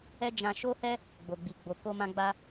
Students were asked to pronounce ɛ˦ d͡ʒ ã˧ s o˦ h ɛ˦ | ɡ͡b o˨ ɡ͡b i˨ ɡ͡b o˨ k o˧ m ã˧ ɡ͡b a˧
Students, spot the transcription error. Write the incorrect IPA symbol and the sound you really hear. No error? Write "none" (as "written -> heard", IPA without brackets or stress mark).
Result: s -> ʃ